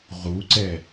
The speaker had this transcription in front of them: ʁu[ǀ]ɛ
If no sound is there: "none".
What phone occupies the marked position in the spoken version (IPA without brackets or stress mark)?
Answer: ǀ